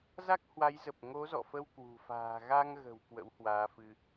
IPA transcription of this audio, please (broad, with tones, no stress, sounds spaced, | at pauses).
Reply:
z a˦˥ k̚ h w a˨˦ j z ə˨˩ p̚ ŋ o˨˦ z ɔ̰˧˨ f ə˧ w k w ṳ˨˩ f a̤ː˨˩ ɣ a˧ ŋ ɣ ə̤˨˩ w k w ə̰˧˥ w h w aː˨˦ f ɨ˧